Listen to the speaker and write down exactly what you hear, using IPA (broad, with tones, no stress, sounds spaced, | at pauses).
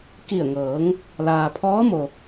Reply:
k i˧˩ ə̯ ŋ ɤː˩˧ ŋ | l aː˩ pʰ ɔː˧˥ m o˩